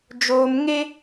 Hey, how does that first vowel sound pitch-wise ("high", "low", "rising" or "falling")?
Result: high